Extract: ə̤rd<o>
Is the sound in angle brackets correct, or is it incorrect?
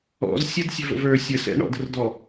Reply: incorrect